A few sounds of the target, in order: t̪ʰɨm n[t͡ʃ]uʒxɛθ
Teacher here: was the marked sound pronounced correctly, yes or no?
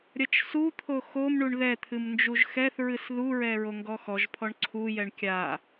no